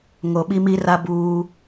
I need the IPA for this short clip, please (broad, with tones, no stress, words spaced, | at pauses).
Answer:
ŋo˨ɓi˦mi˦ra˦ buː˦